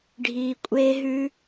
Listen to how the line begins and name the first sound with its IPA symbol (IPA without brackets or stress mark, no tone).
ɖʱ